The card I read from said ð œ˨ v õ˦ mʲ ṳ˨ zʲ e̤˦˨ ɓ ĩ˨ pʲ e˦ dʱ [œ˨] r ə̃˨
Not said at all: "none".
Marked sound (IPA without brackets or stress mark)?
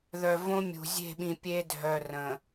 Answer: œ˨